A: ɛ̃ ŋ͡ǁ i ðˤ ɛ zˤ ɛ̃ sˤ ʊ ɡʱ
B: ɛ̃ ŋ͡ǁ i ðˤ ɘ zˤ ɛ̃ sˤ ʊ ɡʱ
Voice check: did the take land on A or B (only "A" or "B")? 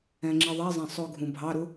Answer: A